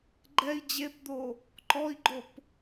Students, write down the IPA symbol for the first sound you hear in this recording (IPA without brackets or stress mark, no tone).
ɡ͡ǃ